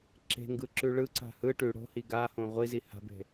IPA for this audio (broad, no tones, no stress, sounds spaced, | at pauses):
ǁ e̤ ŋ ɡ ɯ ǁ ʉ ɭ ɯ ǀ a̤ h ɯ ʈ ʉ ɽ o̤ h i ɡ a h õ ʁʷ i z i h a̤ b e̤